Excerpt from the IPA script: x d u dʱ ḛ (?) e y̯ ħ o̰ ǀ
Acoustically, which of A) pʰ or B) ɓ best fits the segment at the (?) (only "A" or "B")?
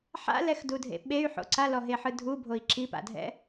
B